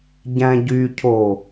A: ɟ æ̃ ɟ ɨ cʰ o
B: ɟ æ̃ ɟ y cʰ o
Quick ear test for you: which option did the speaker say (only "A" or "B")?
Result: B